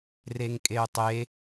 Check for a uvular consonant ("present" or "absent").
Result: absent